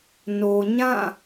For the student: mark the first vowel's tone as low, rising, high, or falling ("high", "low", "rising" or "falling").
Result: low